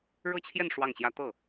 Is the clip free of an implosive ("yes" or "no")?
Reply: yes